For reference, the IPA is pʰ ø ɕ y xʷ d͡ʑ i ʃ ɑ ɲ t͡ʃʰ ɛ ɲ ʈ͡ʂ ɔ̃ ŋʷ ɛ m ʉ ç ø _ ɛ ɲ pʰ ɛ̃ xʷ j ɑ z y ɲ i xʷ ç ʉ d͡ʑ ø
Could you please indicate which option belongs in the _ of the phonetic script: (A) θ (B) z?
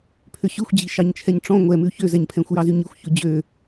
B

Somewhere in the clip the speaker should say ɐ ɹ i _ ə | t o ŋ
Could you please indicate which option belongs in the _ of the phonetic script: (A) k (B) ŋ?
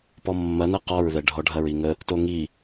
B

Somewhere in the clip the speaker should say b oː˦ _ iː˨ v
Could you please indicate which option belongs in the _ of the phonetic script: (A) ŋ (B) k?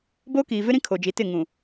B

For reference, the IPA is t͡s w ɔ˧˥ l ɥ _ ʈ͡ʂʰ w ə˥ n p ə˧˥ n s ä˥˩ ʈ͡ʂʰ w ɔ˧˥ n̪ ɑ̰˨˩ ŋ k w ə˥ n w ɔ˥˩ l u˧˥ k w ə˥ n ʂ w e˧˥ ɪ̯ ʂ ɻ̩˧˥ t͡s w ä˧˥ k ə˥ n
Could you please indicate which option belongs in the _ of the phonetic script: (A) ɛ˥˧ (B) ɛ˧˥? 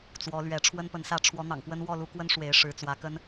B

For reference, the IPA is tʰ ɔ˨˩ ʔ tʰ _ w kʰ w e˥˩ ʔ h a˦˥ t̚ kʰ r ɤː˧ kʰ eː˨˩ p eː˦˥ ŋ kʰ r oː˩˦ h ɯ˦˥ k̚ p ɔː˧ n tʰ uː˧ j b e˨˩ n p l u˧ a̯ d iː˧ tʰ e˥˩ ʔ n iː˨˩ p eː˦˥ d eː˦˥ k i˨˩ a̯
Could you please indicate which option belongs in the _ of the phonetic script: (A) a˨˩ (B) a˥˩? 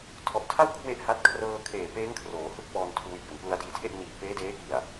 B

